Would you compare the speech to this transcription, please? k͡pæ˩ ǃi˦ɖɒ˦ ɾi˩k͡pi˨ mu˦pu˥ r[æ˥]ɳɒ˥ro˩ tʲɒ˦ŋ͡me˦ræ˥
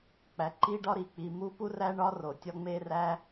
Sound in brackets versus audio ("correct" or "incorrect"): correct